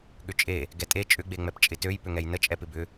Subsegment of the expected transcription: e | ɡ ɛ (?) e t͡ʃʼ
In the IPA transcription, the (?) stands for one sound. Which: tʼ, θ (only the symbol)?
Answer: tʼ